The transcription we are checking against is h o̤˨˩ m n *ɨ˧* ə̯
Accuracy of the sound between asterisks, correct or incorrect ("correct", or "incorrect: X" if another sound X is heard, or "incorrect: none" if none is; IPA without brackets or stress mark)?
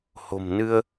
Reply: correct